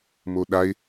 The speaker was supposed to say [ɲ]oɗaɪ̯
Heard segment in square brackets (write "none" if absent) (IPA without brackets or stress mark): m